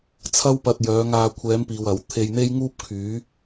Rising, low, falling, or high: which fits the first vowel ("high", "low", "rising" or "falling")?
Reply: high